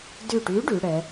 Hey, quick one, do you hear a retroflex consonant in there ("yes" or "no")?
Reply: yes